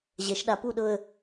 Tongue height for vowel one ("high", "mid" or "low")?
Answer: mid